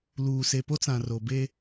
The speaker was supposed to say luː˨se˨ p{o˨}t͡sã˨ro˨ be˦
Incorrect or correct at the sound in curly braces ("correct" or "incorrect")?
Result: incorrect